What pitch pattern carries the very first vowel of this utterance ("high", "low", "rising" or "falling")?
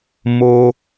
low